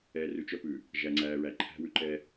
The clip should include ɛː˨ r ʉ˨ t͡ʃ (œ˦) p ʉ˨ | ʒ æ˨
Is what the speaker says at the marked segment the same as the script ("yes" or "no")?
yes